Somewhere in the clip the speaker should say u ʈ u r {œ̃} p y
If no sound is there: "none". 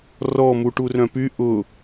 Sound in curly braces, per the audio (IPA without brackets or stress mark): œ̃